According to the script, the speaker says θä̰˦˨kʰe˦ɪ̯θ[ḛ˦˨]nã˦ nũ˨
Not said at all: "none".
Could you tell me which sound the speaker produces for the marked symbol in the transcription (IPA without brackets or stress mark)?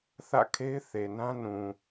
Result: e˨